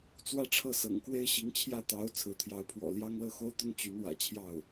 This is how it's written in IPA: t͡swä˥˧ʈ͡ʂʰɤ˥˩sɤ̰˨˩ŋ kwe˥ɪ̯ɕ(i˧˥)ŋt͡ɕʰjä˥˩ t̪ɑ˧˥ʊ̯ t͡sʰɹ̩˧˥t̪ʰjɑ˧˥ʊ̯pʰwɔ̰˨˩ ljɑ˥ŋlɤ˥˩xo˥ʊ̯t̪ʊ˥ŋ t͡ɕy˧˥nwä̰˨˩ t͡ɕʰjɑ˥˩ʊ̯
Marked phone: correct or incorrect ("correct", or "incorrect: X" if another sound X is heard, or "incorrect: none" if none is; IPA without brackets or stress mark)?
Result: correct